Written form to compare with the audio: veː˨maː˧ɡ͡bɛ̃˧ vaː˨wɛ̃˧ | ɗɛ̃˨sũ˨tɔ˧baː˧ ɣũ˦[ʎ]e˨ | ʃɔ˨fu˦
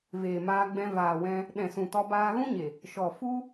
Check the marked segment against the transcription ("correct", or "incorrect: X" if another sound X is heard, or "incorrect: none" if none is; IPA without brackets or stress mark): incorrect: ɲ